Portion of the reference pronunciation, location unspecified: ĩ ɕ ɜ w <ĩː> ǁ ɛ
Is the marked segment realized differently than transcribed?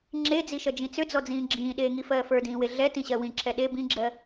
yes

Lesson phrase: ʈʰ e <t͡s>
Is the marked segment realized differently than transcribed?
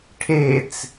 no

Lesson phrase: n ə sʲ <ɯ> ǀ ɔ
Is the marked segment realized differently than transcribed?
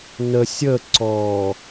yes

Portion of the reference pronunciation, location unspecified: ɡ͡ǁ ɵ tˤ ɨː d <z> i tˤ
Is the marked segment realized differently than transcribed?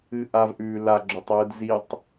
no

